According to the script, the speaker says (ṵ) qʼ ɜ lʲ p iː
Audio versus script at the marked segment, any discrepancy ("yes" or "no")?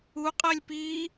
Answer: yes